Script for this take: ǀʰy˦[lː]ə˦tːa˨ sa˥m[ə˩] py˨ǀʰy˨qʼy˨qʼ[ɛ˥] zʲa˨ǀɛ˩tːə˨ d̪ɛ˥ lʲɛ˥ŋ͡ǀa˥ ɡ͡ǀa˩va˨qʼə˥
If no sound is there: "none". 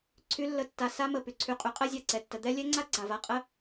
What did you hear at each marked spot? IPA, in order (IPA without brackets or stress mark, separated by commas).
lː, ə˩, ɛ˥